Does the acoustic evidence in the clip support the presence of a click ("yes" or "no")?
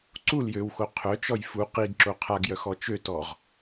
yes